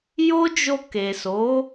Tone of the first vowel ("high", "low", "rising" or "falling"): high